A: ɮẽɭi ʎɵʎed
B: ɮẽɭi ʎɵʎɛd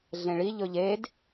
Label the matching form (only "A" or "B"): A